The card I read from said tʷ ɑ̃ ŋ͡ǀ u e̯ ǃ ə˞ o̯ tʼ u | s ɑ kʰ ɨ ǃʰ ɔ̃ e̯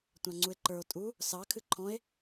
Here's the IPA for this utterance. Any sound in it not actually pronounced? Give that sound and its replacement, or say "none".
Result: none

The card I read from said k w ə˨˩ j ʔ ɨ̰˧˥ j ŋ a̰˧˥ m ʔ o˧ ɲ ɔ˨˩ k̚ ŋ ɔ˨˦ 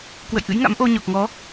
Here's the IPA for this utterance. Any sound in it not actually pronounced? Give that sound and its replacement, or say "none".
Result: ə˨˩ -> ə̰˧˨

